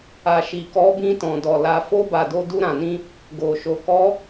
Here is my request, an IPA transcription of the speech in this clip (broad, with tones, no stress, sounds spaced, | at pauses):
a˨ ʃ i˨ k ɔ˨˦ b ĩ˧ t ɔ̃˨ d ɔ˨ l a˨ f o˧ b a˨ d o˧ d u˧ ɾ ã˨ n ĩ˧ | ɡ o˨ ʃ o˨ k ɔ˨˦